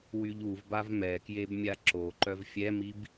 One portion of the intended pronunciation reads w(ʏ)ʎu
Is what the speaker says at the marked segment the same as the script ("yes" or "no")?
no